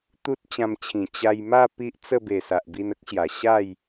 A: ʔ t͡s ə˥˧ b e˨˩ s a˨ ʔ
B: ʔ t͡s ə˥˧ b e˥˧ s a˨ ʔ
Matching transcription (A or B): A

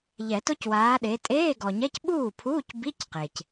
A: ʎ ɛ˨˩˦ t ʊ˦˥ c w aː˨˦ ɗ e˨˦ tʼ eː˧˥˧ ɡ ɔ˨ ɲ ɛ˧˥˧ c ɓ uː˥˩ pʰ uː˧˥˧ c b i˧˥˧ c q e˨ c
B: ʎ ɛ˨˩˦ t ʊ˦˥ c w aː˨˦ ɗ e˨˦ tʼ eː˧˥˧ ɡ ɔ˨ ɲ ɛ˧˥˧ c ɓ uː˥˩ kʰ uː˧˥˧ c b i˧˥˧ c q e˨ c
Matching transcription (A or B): A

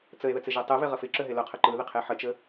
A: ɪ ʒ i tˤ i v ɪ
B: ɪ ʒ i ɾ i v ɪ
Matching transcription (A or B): A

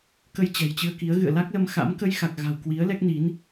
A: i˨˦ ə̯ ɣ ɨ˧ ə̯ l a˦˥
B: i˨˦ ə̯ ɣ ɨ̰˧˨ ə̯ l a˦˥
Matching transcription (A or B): B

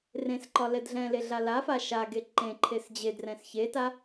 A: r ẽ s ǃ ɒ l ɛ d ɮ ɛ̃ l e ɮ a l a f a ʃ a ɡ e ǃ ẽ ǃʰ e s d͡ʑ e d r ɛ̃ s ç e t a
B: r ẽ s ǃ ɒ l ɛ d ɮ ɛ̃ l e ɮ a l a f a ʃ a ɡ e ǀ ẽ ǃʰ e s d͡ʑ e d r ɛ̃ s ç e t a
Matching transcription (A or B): A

